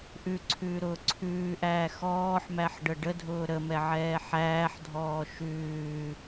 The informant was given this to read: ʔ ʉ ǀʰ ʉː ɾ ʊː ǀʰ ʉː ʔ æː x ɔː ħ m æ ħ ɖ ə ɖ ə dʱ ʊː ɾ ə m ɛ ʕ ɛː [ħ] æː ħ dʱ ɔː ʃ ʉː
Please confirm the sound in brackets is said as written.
yes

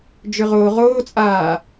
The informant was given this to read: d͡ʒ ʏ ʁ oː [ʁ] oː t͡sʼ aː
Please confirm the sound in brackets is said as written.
yes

